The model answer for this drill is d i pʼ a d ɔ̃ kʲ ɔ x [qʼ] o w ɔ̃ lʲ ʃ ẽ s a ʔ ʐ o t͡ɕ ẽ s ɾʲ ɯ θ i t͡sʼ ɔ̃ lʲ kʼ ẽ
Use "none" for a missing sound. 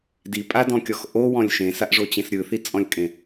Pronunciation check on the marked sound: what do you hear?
ʔ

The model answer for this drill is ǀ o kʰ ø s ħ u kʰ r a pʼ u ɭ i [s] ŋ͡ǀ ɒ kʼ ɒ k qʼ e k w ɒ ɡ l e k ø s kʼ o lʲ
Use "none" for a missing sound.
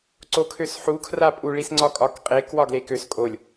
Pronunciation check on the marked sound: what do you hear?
s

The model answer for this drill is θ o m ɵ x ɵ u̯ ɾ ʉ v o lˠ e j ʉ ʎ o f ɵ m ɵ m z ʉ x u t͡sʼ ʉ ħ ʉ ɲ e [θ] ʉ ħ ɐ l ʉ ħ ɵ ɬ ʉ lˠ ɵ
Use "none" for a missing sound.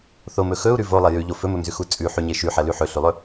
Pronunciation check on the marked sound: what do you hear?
ʃ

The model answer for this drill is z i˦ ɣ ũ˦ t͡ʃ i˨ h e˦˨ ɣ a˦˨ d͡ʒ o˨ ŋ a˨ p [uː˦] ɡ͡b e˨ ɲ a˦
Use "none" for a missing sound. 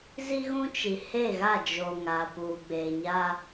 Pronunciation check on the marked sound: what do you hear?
uː˨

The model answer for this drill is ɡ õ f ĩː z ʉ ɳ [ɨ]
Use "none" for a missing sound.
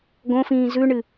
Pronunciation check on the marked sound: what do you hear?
ɨ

